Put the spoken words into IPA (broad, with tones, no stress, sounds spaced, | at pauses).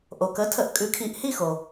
ʔ o˩ k ə˩˥ tʰ ə˩˥ ʔ kʼ ʉ˩˥ kʰ i˩˥ ʔ h i˥˩ x o˩